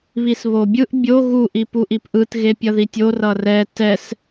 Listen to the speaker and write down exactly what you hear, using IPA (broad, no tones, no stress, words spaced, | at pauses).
βisβobʲɯʔ bʲo ɣu ʔipuʔipʔɯt ɣepʲʌðitʲo rʌrɛ tɛs